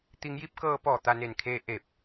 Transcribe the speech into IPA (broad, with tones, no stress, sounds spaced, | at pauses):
t̪ i˧˥ ŋ j i˧˥ p̚ k ɤː˧ p ɔː˧˩ t̪ a˧ n e˧˩ n kʰ eː˧ ʔ e˧˩ p̚